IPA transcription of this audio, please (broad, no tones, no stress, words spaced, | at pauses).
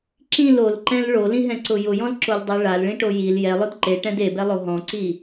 ǁĩl olǃɛ̃l ɭolĩɦɛ̃ǀʊ jʊjɔ̃lǁolʲdˤe ɭalɭĩʈo jil jɛlˠʊd ǃeʈɛ̃d ebɛlˠo ɦɔ̃ǀi